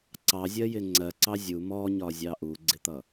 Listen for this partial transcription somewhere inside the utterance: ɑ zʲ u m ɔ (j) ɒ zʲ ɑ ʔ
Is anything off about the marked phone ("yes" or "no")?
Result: yes